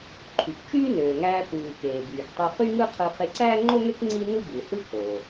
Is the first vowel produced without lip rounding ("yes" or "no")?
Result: no